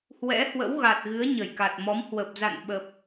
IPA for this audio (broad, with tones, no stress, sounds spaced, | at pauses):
h w ɛ̰˧˥ h w ə̰˧˥ w ɣ a˨˩ t̚ ɣ ɨ˨˦ ə̯ ɲ ə˧˩ j k a˨˩ t̚ m ɔ˨˦ m h w ə˨˩ p̚ z a̰˧˨ n ɓ ə˨˩ p̚